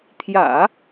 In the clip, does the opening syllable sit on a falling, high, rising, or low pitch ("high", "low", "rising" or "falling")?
low